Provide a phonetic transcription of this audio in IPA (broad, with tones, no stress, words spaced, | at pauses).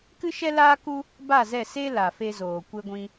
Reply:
kɨ˦ʃɛ˦laː˦ku˦ | ba˦˨zɛ˦˨ se˦ la˨fe˦zoː˨ kʷe˦ɡʷĩ˦